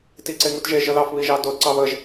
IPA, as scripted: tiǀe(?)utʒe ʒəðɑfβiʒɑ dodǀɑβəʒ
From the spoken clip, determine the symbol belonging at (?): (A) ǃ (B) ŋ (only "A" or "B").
B